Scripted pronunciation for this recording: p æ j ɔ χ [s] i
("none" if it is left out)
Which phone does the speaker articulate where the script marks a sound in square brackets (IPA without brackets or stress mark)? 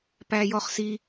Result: s